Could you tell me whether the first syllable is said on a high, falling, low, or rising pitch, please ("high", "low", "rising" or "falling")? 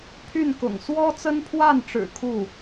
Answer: falling